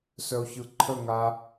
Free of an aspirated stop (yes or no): no